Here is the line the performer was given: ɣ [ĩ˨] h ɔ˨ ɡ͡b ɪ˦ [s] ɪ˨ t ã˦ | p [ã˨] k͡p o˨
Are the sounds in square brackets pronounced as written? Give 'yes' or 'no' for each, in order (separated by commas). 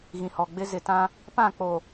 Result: yes, no, no